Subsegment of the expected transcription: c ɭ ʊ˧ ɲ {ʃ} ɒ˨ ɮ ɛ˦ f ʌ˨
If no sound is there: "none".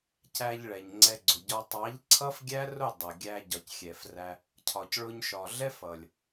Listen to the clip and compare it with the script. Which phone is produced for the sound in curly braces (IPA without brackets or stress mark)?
ʃ